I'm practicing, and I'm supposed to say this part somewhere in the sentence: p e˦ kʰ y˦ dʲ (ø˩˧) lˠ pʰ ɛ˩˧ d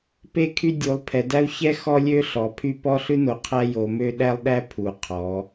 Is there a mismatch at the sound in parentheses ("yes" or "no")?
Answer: yes